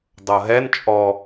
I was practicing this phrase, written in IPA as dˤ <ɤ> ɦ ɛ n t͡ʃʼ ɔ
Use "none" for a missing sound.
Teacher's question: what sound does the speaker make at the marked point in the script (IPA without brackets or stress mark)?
ɤ